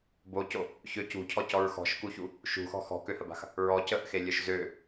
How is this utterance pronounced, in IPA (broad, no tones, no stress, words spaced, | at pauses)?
boco | çø cṳcʰɔcɔɹ xɔ̤ʃkuçu | ʃṳxɔ̤ xɔ̤køhəba̤x | ɹɔ cəʔxelʲœʃ zø